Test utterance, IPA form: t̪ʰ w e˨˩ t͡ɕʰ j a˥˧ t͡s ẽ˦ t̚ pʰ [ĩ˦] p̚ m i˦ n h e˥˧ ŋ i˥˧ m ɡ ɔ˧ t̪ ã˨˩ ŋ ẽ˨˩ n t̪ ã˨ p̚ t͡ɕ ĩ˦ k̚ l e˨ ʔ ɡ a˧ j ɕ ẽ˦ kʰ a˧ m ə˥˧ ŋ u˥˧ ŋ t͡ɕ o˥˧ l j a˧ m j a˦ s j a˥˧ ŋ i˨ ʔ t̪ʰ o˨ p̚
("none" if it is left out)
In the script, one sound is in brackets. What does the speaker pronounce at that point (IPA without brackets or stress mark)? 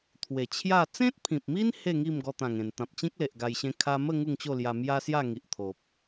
ĩ˨